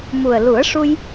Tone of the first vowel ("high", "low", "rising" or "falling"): low